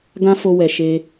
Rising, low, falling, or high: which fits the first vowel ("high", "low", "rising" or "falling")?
high